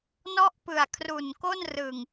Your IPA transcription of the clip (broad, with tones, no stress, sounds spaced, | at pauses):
n ɔ˥˩ ʔ p ɯ˨˩ a̯ kʰ r u˨˩ n k o˥˩ n r ɯ˨˩ ŋ